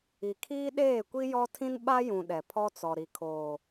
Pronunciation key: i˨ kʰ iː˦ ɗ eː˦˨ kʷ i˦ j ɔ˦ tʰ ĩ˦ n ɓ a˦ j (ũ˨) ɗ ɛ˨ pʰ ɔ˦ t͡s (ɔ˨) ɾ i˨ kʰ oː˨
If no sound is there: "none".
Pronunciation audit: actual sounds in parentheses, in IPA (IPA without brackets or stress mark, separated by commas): ũ˨, ɔ˨